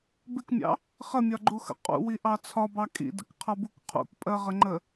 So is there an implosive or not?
no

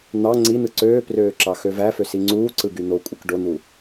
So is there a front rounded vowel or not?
yes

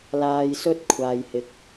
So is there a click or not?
no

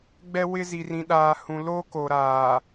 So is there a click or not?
no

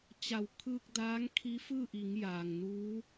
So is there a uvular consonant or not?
no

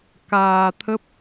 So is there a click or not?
no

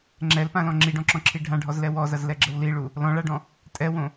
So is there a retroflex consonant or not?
yes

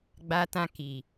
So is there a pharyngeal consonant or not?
no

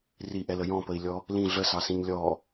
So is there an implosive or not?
no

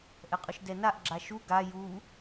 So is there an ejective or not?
yes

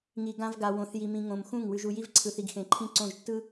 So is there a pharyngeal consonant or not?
no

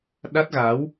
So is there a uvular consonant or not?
no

